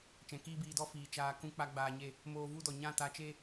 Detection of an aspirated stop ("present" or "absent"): absent